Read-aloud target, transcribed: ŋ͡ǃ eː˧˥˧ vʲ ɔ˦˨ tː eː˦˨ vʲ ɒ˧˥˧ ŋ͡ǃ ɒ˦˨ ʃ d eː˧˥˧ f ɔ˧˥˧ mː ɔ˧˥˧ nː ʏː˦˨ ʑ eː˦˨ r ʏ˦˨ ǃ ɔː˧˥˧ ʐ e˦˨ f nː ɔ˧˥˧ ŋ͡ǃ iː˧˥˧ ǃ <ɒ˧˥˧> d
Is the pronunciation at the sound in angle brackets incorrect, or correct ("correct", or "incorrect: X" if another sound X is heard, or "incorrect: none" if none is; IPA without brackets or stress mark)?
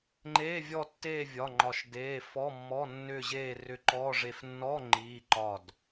incorrect: ɒ˦˨